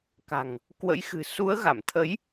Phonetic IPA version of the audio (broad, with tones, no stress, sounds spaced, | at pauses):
k a̤˨˩ ŋ | k w ə̰˧˥ j x ɨ̤˨˩ s u˨˦ ə̯ ɣ a˧˩ m t̪ʰ ə˨˦ j